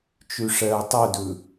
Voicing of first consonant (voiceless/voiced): voiceless